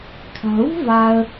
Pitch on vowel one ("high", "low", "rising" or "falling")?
low